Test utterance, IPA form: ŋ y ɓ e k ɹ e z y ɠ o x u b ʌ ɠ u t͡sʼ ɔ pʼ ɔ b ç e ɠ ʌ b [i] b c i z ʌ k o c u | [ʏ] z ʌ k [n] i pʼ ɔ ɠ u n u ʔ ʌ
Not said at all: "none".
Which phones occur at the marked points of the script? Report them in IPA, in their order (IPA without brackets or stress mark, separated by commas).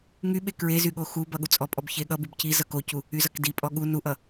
y, y, d